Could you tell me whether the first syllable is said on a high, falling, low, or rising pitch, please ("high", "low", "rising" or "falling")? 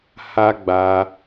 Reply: high